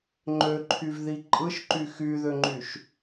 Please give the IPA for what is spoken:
ŋ͡ǃ ø ǃʰ y v ð i ǃʼ ɯ ʃ ǃ y x y ð ø ŋ͡ǃ y ʃ

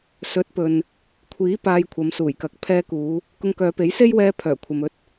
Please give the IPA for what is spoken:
s ɵ˨˥ t̚ p ɵ˨ n | kʷʰ iː˨˥ p aː˧ j kʷʰ ɐ˨˧ m s uː˨˩ j k ɐ˨ k̚ pʰ ɛː˧ k uː˨˧ | k ʊ˧ ŋ k œː˨˧ p e˨˥ j s e˥ j w ɛː˧ pʰ œː˨˩ kʷʰ ɐ˨ m ɵ˧ t̚

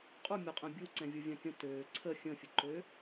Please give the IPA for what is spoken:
qʼ u mʲ ɔ qʼ ɛ̃ bʲ u ǀ ɛ̃ vʲ u vʲ ã kʲ ə̃ t øː ǀʰ ə xʲ ə̃ fʲ ə ǃ ø

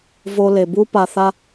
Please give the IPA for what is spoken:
v o˧ l e˨ b u˦ p a˧ θ a˦

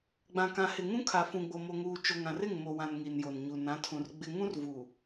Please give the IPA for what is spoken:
ɡ͡b ã˨ k ã˨ h ɪ˨ ŋ ũ˦ kʰ a˨ f ũ˨ ɡ͡b o˨ m o˨ ŋ uː˨ t͡ʃ o˨ ŋ ã˨ r ɪ˦˨ ŋ m o˨ w ã˨ n ŋ i˨ n j o˨ n ɲ u˨ n ã˨˦ tʰ ũ˨ r ɡ͡b ɪ˦ ŋ ũ˦ r v u˨

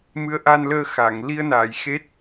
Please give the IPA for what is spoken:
m ɨ˧˥ ə̯ ʔ a˧ n l əː˧ x a˨˩˨ ŋ l i˧ ə̯ n aː˨˩˨ j x e˦˥ t̚

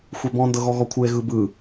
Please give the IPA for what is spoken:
xʷ e b ɔ̃ n d ɤ ɣ ɔ ɣ ɔ kʷʰ ɯ e̯ ɣ ɯ b ɯ

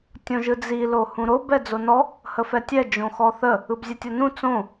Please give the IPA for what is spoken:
tʲ õ ʒ ɯ d͡z i l o h ũ ɾ o b ɛ d͡z o n ɔ | h ə f ɛ tʲ ɛ d͡ʒ õ x ɔ θ ə | ɯ b zʲ ɛ tʲ o n ũ t͡s õ

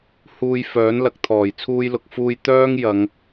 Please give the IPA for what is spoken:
h uː˧ j f œː˨˥ n l ɐ˨ k̚ t̪ʰ ɔː˨˩ j t͡sʰ uː˧ j l ʊ˨ k̚ f uː˧ j t̪ œː˥ ŋ j ɐ˨˧ ŋ

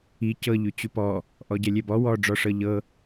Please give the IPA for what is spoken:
i c ɤ ʎ ʉ t͡ɕ ʉ p ɔ | ʔ ɔ ɟ ɛ lʲ ɛ b ɔ w ɔ ɖ͡ʐ ɔ ʂ ɤ ʎ ɤ

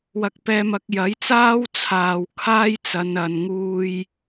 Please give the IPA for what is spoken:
w ɐ˧ k̚ p ɛː˧ m ɐ˨˥ k̚ j ɐ˨˥ j t͡s aː˥ w t͡sʰ aː˨ w kʰ aː˥ j t͡s ɐ˨˧ n ɐ˨ n ŋ uː˧ j

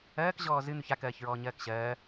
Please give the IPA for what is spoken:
ɜː k ʑ ɔː z ɨ n̪ ʉ ç a k ɜː ç ɹ ɔː ɲ ɜː k ɕ ɜː

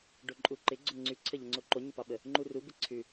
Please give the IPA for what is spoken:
ɖ o ǃʼ u ǃ ɪ ɡ͡ǀ o ŋ͡ǀ ʉ ǀʰ ə ʎ ə ŋ͡ǀ o ǃ o ɲ ɪ p ɑ ɓ ə | ŋ͡ǃ u r u b ɪ ǀʰ ʉ

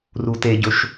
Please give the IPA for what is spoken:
r u t e ɟ ɵ ʃ

